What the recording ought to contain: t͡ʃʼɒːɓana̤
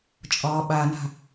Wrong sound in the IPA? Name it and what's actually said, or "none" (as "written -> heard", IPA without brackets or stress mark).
none